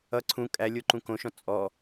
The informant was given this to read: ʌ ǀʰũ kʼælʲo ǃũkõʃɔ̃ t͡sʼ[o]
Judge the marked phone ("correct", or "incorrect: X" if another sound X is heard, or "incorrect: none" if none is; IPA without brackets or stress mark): incorrect: ɔ